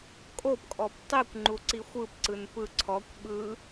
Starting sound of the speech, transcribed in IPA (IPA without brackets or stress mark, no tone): kʼ